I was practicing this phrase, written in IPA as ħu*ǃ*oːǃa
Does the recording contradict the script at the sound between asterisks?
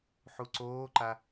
yes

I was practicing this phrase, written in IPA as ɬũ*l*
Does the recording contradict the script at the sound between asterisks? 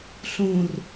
yes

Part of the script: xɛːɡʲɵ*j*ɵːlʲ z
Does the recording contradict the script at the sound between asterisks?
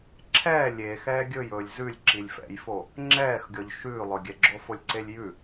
no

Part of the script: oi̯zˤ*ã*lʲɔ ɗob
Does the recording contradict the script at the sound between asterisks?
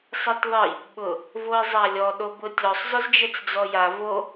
yes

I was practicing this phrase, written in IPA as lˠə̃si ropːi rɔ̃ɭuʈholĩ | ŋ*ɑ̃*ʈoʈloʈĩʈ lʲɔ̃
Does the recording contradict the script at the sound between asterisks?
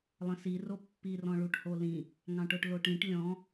no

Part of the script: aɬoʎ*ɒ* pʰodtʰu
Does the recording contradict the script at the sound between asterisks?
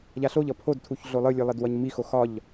yes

